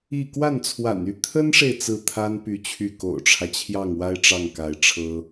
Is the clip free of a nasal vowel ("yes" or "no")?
yes